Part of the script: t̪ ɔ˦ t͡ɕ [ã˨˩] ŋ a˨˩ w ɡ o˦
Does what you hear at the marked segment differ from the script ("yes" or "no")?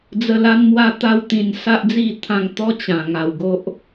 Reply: no